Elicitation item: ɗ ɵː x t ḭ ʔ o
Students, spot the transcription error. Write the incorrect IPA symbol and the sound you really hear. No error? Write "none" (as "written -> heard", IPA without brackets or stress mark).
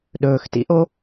none